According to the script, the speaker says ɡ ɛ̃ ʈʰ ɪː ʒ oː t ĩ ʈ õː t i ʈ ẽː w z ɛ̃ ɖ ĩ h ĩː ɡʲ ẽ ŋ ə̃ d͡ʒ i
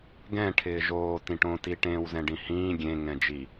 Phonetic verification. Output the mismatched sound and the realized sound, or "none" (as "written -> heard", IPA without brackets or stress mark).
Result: ə̃ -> ɛ̃